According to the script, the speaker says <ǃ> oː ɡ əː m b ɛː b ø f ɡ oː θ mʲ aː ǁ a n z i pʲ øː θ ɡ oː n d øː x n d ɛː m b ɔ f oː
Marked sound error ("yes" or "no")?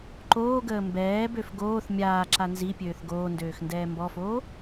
no